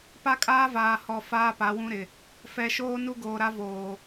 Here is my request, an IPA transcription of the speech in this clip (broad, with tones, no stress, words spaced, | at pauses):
pa˦kʼaː˦vaː˨ hɔ˨ faː˦pa˨˦wũ˦ɾɪ˨ | fɛ˨ʃoː˦ nu˦ɡoː˨ɾa˦ voː˨